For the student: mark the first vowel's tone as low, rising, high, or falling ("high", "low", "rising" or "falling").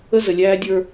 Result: high